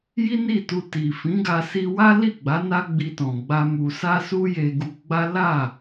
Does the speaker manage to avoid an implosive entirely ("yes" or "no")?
yes